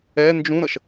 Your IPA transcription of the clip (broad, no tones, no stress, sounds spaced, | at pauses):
ɛ n d͡ʒ ũ ɾ ʌ ʃ